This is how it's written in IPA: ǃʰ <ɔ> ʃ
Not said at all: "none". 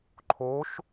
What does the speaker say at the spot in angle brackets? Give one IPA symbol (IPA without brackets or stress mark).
o